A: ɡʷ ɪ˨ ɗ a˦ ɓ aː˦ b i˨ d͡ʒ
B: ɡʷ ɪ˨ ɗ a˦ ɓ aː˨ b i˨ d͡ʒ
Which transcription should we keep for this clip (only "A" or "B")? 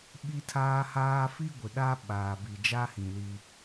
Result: B